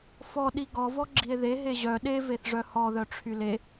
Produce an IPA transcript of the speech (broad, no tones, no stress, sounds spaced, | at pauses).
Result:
f ɔ ɗ i ɡ ɔ v ɔ ɡ͡ǁ i e̯ ð e ɦ e ʑ œ ɗ e v e θ ʐ œ h ɔ ð œ ʈ͡ʂʰ y l e